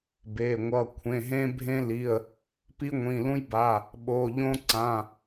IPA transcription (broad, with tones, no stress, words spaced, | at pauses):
be˩˧˩ ŋʷʌ˩˧˩ kʷʰẽ˩˧˩ɦẽ˦bʱẽ˦li˩˧˩ə̯ | pi˦ŋʷĩ˩˧˩lũ˦jba˩˧˩ | ɓo˩˧˩ʎõ˦ ǀã˩˧˩